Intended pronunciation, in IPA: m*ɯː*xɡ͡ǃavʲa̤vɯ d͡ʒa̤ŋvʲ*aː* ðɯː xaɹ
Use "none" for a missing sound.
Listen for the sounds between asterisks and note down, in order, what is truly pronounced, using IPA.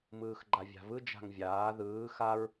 ɯː, aː

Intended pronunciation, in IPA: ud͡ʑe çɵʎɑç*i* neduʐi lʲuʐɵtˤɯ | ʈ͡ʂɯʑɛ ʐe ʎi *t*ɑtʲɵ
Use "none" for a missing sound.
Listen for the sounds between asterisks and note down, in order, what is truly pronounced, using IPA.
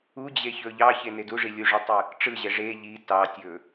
e, t

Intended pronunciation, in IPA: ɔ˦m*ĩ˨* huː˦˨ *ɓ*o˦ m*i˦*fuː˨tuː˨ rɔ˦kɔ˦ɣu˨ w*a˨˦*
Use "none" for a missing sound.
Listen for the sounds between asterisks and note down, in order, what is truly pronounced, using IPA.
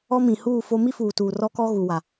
ĩ˨, f, i˦, a˨

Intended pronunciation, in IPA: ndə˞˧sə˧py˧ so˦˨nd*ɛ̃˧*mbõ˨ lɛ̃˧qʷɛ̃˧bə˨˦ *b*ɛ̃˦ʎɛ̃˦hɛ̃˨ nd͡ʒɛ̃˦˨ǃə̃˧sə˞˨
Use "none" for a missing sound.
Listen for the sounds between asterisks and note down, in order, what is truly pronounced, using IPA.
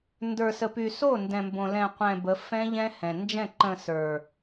ɛ̃˨, f

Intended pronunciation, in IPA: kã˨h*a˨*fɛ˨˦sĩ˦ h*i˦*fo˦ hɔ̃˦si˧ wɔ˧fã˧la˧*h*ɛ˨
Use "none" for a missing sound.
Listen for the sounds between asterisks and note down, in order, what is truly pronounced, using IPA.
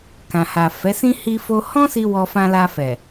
a˨, i˦, f

